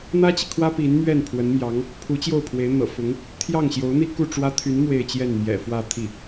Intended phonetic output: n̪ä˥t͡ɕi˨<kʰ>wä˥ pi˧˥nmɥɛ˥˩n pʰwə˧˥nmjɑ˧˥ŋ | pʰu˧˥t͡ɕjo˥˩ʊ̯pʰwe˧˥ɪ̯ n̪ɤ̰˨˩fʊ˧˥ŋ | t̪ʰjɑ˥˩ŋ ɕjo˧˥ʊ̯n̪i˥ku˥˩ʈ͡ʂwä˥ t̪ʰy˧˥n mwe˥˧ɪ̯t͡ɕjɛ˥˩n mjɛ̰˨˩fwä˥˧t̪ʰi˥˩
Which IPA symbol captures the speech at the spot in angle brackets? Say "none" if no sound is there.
kʰ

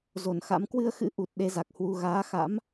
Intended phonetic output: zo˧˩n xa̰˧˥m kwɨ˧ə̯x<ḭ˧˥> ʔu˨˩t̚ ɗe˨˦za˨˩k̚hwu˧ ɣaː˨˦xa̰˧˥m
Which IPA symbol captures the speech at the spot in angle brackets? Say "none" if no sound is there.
ɨ̰˧˥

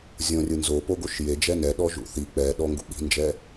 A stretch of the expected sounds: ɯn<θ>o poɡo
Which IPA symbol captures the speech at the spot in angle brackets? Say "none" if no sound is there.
z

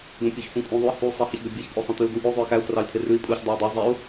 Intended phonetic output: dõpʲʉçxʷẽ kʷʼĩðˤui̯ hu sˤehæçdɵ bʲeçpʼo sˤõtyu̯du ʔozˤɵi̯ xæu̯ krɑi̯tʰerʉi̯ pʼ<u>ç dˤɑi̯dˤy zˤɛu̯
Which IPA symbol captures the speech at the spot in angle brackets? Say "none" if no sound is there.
u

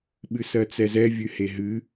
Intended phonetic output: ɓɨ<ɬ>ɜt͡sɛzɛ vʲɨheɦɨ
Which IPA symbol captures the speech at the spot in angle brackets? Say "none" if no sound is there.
s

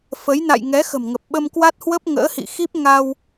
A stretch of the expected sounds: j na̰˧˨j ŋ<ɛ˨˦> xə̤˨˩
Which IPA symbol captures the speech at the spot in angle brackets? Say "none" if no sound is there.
ɛ˨˦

